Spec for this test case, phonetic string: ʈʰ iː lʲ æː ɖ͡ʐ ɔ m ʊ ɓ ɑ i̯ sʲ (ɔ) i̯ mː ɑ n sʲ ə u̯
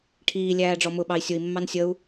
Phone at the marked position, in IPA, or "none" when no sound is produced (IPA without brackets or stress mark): ʊ